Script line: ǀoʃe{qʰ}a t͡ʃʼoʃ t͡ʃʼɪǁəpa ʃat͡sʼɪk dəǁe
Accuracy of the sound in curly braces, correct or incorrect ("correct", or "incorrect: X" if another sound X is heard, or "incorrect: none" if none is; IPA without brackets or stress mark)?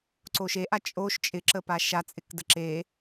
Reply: incorrect: ʔ